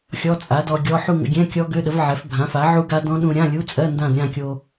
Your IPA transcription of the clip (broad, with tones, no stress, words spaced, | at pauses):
xʲɔ˧˥˧t͡sʼa˩˥dɔ˧ɡʲɔ˧˥˧ ħu˥˧ŋə̰˧ɡʲɛ̃˧˥˧kʲɔ˦˥ ɡø˧˥˧ɗə˩˥v ʕɛ˩˥f bʱã˩˥fa˩˥ʕu˦˥ɡa˦˥ dɔ̃˦˥ɗũ˧ ɾʲã˧˥˧lʲu˧˥˧t͡sʼɜ˧˥˧ ndã˥˧dɾʲã˥˧ kʲo˧